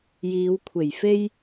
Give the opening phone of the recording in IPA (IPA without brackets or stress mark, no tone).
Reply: j